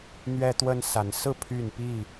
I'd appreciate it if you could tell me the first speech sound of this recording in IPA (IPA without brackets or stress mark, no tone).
n̪